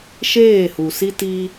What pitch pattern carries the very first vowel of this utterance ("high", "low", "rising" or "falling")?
falling